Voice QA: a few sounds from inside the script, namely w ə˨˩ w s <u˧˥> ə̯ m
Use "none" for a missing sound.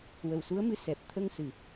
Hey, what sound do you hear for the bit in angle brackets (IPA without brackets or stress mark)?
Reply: u˧˥